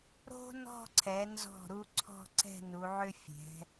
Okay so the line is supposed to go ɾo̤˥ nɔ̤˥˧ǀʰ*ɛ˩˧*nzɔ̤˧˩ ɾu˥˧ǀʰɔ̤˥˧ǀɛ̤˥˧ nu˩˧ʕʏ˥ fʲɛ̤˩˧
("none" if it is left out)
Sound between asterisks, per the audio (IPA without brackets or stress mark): ɛ˩˧